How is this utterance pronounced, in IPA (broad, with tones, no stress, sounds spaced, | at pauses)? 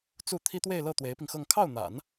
t͡s u˥˩ t̪ʰ i˥ t̪ w e˥˧ ɪ̯ l ɤ˥˩ t̪ w e˧˥ ɪ̯ p i˧ ŋ x ɤ˥˧ ŋ kʰ ɑ˥˩ ʊ̯ n̪ a̰˨˩˦ n